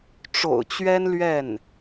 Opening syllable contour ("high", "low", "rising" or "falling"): low